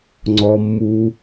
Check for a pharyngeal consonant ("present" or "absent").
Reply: absent